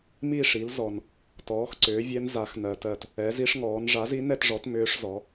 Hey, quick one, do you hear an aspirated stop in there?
no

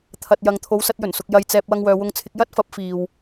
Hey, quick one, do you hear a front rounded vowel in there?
yes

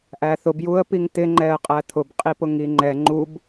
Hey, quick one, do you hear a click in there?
yes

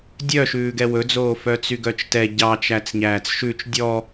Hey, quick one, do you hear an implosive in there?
no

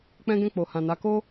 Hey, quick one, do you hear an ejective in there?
no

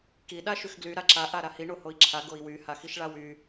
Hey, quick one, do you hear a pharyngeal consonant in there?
no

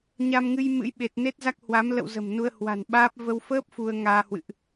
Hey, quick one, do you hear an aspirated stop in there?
no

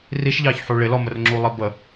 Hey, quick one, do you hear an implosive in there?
no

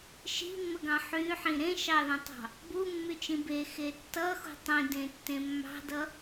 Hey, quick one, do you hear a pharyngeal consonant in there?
yes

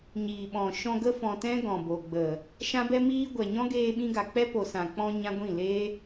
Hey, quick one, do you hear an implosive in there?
yes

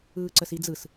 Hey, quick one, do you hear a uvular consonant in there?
no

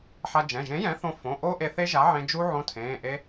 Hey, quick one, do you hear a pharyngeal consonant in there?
yes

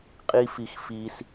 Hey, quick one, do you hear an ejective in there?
yes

